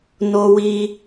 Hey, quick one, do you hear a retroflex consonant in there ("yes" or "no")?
no